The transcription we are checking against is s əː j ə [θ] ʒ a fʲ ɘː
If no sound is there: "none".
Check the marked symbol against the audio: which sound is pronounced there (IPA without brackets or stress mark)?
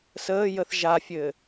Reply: θ